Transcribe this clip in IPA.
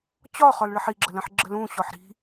t͡ɕɒχɒlɭəħ iɡ͡ǁələ̃ħ ɡ͡ǁəlũ ɕɔħɾi̤

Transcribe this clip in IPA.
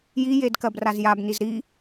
jijedkɜbraz jabniz ɾi

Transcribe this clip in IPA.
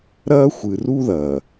ɾɐː˦ xʷɨ˨ru˦ðɐː˨

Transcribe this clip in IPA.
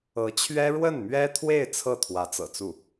ɤ˧˥t͡ɕʰɥɛ˥ ɻwə˥˩nmɥɛ˥t̪ʰwe˥˧ɪ̯ t͡sʰɤ˥˩ t̪ʰwä˧˥t͡sɤ̰˨˩t͡su˥˩

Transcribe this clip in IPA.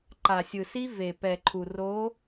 ǃa˨sʲɯ˨si˦ ve˨pɛ˨ ǃʰu˨ro˨˦

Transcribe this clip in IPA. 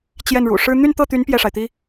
t͡ɕjɛ˥˩nɻṵ˨˩ ʂɻ̩˥ n̪y˥˧nt̪ɤ˥˩t̪y˧˥n pjɛ˥˩ʂa˩ɪ̯t̪i˥

